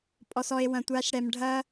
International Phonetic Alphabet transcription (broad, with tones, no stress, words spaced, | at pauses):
pʼɔ˨sɔ˨e̯ wɐ̃˨tʷa˨˦ʃɽɛ˨mɖʱɐ˦